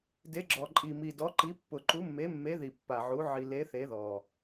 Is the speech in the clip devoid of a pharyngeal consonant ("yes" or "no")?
no